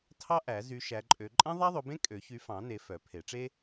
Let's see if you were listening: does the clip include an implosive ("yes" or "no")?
no